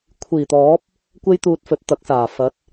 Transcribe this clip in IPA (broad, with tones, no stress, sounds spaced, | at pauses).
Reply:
kʷʰ iː˨˩ t̪ ɔː˨˥ p̚ | kʷ e˥ j t̪ uː˧ t̚ f ɵ˨˥ t̚ t̪ ɐ˨˥ k̚ s aː˨˩ f ɐ˨˥ t̚